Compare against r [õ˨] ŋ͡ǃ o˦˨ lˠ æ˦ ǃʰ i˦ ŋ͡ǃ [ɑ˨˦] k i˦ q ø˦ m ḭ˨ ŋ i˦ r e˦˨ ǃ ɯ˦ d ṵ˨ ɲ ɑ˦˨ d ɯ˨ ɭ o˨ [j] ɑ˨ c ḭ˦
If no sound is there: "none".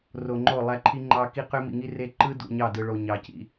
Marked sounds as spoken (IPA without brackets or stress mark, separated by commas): o˨, ɑ˦, ɲ